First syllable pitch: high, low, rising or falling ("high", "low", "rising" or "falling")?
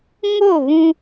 falling